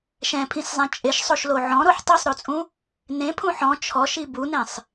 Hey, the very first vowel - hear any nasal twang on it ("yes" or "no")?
yes